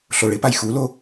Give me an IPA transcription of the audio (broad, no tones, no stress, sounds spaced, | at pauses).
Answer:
ɬ o ɭ ɪ p a j x u l o